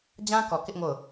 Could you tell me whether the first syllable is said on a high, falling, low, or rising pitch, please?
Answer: high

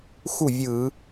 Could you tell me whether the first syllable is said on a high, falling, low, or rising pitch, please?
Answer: falling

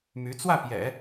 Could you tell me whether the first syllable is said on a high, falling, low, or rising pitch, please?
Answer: rising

